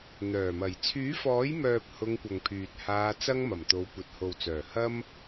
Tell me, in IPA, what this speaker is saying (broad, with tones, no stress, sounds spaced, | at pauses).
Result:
n̪ œː˨˩ m ɐ˨˩ j t͡sʰ yː˨˥ f ɔː˨˥ j m œː˨ p̚ h ʊ˧ ŋ kʷ ɐ˨ ŋ pʰ yː˨ t̚ h aː˧ t͡s ɐ˥ ŋ m ɐ˨˩ m t̪ o˨˧ w kʷ ɐ˨ t̚ h o˨ w t͡s œː˨˩ h ɐ˥ m